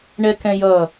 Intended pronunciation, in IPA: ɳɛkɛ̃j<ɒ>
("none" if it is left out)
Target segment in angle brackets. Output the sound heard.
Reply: ʌ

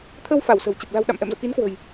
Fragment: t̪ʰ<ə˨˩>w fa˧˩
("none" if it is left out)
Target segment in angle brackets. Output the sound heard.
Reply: ə˧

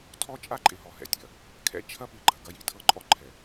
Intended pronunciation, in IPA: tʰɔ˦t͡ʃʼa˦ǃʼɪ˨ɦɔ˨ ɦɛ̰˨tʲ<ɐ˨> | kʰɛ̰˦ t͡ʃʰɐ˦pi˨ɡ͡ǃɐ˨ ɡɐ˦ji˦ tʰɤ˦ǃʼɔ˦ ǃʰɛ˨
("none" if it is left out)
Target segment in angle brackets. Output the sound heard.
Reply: ɐ˨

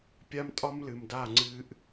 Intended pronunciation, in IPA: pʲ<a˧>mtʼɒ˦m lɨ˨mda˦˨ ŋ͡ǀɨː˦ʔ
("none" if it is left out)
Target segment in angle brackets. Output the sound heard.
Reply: a˦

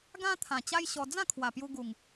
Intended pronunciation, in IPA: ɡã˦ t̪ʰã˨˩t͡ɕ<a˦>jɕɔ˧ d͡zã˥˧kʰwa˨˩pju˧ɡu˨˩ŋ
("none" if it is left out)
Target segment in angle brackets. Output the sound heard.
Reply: a˦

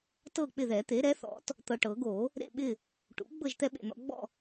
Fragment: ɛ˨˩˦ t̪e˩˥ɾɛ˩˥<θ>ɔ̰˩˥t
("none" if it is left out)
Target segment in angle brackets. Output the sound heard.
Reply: θ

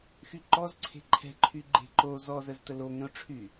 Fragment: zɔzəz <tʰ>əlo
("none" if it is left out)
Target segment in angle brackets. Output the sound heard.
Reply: t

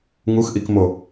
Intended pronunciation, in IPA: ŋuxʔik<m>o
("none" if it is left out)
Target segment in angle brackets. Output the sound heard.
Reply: m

